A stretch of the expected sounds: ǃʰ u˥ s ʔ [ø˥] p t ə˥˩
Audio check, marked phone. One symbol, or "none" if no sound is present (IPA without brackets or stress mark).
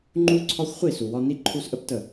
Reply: ə˥